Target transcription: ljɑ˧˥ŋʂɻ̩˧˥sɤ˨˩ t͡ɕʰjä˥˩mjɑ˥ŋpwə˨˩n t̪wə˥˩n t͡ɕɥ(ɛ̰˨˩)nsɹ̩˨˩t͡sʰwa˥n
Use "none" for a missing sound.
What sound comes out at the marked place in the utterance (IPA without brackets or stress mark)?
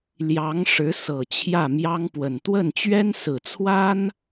ɛ˥